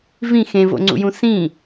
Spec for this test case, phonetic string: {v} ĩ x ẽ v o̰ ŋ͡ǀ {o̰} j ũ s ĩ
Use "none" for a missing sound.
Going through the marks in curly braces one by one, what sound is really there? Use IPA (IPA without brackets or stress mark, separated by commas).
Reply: v, ṵ